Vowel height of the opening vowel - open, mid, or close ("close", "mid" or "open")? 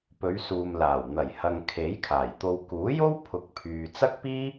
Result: mid